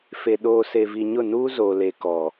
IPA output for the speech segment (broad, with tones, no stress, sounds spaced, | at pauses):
f e˨ ɗ oː˨ s e˨ v i˨ ɲ ʊ˦˨ n uː˦ z oː˨ l e˨ k ɔ˨